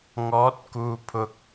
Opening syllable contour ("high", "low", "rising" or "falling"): rising